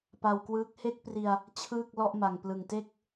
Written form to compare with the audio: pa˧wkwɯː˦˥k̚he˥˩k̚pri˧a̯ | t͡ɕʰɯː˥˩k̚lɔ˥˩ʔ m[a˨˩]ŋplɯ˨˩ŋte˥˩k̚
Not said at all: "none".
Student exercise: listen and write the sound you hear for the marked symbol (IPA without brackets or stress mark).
a˨˩